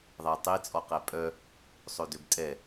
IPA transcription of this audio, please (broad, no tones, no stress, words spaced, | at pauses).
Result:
ðˤætˤet͡sʼɔ qɛpʼœ | sˤɵdøbtʼɛ